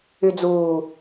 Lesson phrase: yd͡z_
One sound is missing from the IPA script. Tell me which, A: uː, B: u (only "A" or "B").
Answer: A